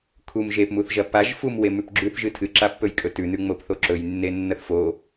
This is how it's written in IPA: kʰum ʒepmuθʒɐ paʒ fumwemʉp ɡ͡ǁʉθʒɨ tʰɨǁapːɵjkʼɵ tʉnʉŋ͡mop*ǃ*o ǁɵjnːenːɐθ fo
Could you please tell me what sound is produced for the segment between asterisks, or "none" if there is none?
θ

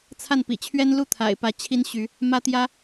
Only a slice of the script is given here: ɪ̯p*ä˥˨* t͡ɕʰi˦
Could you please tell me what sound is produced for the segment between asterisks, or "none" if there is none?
ä˨˦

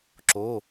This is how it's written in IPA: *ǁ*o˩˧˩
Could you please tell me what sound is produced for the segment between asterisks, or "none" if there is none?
ǁ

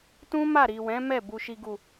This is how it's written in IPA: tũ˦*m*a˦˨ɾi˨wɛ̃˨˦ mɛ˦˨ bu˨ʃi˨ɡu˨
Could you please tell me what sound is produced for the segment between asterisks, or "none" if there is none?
m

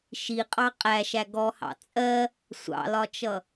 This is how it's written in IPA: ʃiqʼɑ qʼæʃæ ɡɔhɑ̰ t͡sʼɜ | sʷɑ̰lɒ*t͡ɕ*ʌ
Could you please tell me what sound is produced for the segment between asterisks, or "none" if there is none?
t͡ʃ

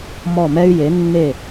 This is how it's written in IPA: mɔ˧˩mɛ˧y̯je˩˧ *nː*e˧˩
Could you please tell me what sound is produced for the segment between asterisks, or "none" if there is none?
nː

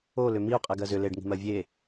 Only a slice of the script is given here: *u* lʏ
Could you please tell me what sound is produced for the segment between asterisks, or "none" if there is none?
o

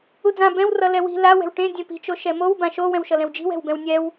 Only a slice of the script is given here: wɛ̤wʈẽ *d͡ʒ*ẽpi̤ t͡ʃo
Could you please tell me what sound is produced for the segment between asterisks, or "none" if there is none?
dʲ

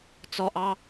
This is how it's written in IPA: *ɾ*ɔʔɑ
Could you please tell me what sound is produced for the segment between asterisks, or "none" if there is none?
t͡s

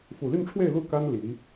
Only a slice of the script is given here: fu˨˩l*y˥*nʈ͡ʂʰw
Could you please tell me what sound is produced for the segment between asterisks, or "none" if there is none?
y˥˧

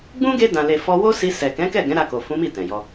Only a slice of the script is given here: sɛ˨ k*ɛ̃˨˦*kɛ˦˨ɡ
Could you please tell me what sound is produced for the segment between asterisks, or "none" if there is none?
ɛ̃˨˦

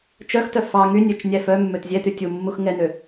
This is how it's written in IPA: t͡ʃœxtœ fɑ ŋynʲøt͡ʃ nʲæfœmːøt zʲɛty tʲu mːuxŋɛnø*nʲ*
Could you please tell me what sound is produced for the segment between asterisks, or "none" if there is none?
none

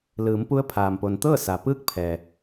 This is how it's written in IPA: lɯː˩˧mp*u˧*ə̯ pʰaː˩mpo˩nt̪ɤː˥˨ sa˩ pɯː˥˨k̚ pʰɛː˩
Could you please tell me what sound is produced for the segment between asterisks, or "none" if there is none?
u˧˥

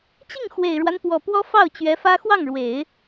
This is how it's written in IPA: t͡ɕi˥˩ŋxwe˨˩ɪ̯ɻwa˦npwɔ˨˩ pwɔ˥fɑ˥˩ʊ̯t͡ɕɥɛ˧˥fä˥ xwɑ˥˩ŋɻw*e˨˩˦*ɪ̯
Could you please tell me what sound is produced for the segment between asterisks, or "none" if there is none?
e˨˩˦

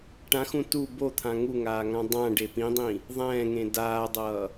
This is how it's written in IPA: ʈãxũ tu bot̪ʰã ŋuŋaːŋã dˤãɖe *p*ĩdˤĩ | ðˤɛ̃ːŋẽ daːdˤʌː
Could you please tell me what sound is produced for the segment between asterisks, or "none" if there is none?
p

